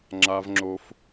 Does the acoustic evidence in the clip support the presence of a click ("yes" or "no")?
yes